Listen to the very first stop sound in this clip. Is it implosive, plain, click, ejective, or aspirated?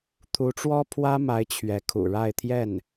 aspirated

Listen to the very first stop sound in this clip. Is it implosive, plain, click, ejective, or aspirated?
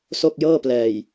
plain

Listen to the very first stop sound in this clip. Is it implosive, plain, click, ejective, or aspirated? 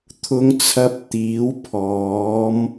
aspirated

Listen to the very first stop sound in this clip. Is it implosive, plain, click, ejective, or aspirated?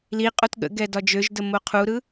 ejective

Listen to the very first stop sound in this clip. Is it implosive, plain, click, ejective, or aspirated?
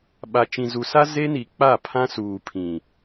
implosive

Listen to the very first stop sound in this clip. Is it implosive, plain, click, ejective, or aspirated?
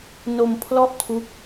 aspirated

